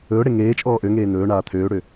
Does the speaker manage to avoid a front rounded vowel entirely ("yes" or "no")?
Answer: no